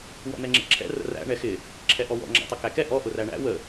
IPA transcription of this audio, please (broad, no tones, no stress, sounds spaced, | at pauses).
w ɔ̰ n̪ ɛ ŋ͡ǁ ɛ̰ ǁʰ ɛ̰ r ə̰ r æ̰ ɳ ɛ x ɪ | ǁʰ ɛ ʔ ɔ w ɔ̰ ŋ͡ǁ æ̰ tˤ ə k æ k ɛ ʔ ɔ ʔ ʊ r æ ɳ æ̰ w ə